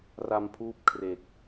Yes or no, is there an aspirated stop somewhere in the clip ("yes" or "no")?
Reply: yes